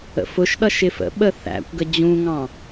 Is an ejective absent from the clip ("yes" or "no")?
yes